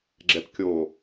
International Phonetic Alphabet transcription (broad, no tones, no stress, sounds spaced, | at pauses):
ɡ͡ǁ ɛ p kʲ o